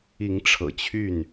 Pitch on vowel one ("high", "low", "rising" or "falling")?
rising